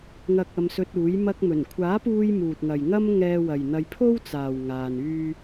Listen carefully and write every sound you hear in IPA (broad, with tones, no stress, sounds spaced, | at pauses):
ŋ ɐ˨ k̚ ɐ˧ m s ɵ˧ t̚ uː˨˥ j m ɐ˧ k̚ m ɵ˨˩ n kʷʰ aː˨˥ p uː˧ j m uː˨ t̚ ŋ ɐ˨ j ŋ ɐ˥ m ŋ ɛː˧ w ɐ˨ j n̪ ɐ˧ j pʰ o˥ w t͡s aː˨ w ŋ aː˧ n yː˥